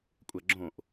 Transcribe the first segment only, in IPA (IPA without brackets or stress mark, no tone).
kʷʼ